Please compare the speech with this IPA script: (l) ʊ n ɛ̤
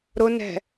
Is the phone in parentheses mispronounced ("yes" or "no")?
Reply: yes